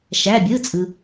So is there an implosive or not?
no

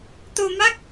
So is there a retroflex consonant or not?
no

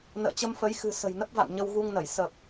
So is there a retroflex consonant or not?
no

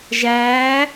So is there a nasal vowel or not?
no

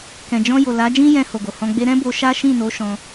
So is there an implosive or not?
no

